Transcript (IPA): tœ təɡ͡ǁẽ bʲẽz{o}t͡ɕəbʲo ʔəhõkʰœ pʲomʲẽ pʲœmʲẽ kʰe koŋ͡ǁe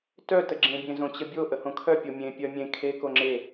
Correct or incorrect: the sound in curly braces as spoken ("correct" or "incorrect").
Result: incorrect